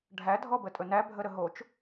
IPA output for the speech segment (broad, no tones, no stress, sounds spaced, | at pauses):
ɖʱ æ dʱ ɔ b ə tʼ ɵ n æ bʱ ə ɾ ə ɦ o t͡ʃ